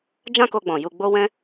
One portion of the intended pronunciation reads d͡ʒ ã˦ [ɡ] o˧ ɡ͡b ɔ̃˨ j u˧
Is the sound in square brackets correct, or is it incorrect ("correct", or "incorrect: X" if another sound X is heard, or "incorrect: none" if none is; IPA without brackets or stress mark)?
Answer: incorrect: k